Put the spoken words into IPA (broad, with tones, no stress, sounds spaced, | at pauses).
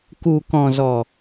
k u˨ k ɔ̃˨ z ɔ˨